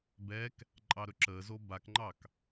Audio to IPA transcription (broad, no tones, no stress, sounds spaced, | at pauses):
b ɛ k | ǃʼ ɑ ɾ ɵ ǁ əː z o b a k ŋ͡ǃ ɑ k